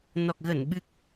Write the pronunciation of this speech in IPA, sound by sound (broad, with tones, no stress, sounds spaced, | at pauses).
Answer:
n ɔ˨˩ k̚ ɣ ə˧˩ n ɓ ɨ˦˥ k̚